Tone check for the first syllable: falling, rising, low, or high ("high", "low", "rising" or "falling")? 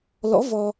rising